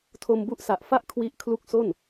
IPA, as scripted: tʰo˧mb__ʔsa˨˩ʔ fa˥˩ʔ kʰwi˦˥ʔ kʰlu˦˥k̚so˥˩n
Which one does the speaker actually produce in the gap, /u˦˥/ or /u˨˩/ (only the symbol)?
u˦˥